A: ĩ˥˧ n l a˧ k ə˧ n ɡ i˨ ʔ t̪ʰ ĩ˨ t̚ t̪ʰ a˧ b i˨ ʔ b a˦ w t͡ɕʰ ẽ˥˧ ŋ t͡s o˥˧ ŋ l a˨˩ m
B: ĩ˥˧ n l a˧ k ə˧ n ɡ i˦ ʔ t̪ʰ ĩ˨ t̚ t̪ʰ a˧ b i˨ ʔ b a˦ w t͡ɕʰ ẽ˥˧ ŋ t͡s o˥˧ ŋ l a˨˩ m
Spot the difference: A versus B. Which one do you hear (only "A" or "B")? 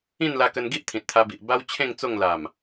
B